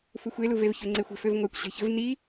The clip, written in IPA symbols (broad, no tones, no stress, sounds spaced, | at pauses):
f u xʷ e l u v e v ç ø ŋ͡ǀ e xʷ ə̤ f ø v ŋʷ æ kʷ ɕ e̤ ç ə̤ v n i